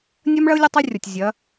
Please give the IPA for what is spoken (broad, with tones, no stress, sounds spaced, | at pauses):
nʲ ɐ˦ m ɭ ɐ˦ ʊ̯ lʲ ɐ˦ tˤ ɛ˦ rʲ ɔ˨ tʲ zʲ ɐ˨˦